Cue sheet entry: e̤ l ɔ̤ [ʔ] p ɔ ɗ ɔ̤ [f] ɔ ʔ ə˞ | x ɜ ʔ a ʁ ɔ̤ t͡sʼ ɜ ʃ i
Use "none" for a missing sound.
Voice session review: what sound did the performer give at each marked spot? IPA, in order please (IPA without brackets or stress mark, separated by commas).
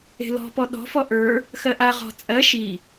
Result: none, f